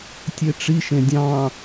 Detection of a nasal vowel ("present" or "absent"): present